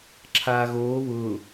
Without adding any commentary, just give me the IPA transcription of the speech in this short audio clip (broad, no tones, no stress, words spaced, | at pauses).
ǁʰaːɣoː βʊː